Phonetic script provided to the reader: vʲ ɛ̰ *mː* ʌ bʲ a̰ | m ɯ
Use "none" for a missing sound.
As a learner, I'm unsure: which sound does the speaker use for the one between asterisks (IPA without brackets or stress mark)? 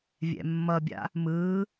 mː